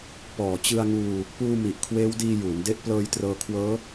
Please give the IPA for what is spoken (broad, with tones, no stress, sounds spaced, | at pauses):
p ɔː˨˩ t͡ɕ ɯ˧ a̯ ŋ uː˧ | p uː˧ m i˨˩ ʔ kʰ w eː˦˥ w d iː˧ j uː˩˦ n d e˥˩ ʔ p l ɤː˧ j t r ɤː˧ kʰ w ɤː˦˥